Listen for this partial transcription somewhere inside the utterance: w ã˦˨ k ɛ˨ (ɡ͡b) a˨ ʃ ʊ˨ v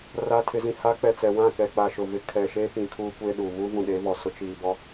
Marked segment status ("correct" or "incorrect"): incorrect